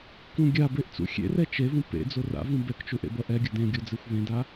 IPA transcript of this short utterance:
k ũ ɡʲ a b e ʔ t͡s ṵ xʲ ḛ r ɛ t͡ʃ e v ũ p ḛ d͡z o r a̰ v ũ b ɛ k t͡ʃ u ʔ ḛ b ʌ ʔ ɛ ɡʲ ʌ d ẽ ɡʲ o d͡z e xʷ v ẽ d a

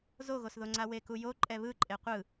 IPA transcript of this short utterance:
z o ɣ o s ð o ŋ͡ǀ a w e k u j o ǃʼ ɛ β ɯ ǃʼ e qʷ ɯ

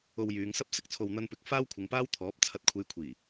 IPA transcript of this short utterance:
o˧ w j yː˨˧ ŋ s ɐ˥ p̚ s ɪ˨ k̚ t͡sʰ o˨ w n̪ ɐ˧ n p ɪ˨˥ k̚ f aː˥ w kʷʰ ɪ˨˧ ŋ p aː˥ w t̪ʰ ɔː˨˥ p̚ t͡sʰ ɐ˨ t̚ kʷʰ e˨˧ j kʷʰ iː˨˩

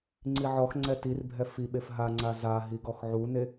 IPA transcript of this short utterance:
ŋ͡ǀ i ʕ ɔ x ŋ͡ǀ ɛ t i r bʱ ɛ f i ɓ e f ɦ a ŋ͡ǀ a z a ɦ i ɡ ɔ x ʕ u n e

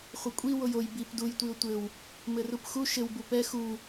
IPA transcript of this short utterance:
χʷ ɘ kʷʼ i w o j o j b i p d u j tʷ i ʊ̯ tʷ ɘ w | m ɘ r u p x u ʃ ɘ w b u p ɛ x u

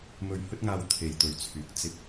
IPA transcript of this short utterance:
m ɵ˧ ɥ h ɵ˥ t̚ ŋ aː˧ w t̪ʰ e˨ j t̪ ɵ˨˧ ɥ t͡sʰ yː˨˥ k̚ t͡s ɪ˧ k̚

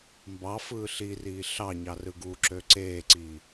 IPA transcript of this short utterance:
m b ɑ f ɯː ɬ i r iː ɬ ɑ ɲ ɑ r ɯ ɡ u ǁ ø ǀ eː ǀ iː

